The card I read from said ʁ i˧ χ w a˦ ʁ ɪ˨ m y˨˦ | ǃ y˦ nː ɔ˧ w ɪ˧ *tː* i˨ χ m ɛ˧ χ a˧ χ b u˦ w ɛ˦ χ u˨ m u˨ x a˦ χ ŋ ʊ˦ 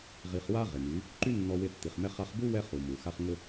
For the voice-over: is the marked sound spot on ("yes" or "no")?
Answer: yes